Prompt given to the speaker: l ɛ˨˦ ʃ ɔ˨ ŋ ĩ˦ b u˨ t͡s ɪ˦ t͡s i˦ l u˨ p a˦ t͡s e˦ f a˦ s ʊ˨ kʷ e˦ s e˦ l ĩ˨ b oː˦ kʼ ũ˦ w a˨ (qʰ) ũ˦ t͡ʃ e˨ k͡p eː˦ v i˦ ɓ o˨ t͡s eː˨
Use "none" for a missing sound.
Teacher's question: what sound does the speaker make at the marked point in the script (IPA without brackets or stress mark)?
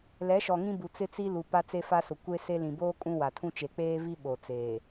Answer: tʰ